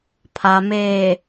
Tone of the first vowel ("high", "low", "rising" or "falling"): low